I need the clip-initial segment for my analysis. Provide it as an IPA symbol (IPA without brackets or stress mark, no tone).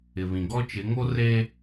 ɪ